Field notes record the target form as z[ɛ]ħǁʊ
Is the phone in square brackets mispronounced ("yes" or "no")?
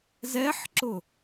no